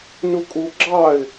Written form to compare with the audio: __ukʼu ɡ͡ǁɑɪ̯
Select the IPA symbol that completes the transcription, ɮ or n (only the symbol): n